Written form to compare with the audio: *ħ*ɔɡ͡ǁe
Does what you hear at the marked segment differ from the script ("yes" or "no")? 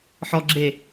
no